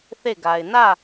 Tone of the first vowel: falling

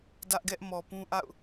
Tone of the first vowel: high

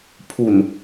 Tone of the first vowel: low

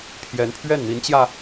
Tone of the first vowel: rising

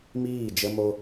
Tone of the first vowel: falling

